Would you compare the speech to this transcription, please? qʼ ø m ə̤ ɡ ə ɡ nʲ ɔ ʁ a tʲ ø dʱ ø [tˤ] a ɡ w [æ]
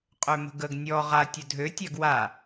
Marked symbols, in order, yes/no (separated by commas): no, no